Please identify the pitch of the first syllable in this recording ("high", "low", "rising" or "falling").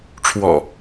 low